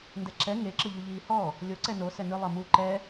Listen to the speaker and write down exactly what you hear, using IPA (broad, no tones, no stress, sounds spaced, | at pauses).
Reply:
n d ɛ ǁ ɛ ŋ e ǁ ɯ ʎ u ʎ iː h ɔ | lʲ o ǀ ɛ n o s ɛ n ɯ lˠ ɤ m u ǃ ɛ